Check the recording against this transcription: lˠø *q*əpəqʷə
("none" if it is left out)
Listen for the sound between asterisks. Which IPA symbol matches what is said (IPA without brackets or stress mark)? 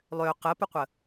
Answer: q